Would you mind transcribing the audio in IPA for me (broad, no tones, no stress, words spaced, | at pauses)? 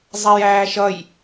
zˤɛjæːʃʌj